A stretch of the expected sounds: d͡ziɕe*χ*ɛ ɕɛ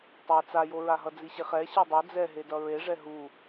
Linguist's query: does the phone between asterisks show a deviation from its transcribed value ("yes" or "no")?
no